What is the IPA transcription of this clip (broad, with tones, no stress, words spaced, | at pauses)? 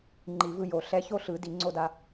ŋ͡ǃi˨˩˦vɯ˧jo˨˩˦ ɬɛ˧˥˧ço˥ ɬɯ˨˩˦di˨˩˦ŋ͡ǀo˧da˧